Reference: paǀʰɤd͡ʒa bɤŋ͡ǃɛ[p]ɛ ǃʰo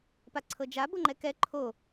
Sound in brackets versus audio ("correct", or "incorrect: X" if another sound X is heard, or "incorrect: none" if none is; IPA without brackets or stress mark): incorrect: k